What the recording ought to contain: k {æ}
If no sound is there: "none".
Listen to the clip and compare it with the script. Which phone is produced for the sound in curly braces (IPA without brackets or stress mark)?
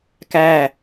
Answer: æ